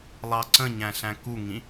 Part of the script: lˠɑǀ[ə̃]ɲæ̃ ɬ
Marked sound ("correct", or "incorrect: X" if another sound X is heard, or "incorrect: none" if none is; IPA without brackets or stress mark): correct